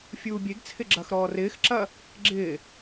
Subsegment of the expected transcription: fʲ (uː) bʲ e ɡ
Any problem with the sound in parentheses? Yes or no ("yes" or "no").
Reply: no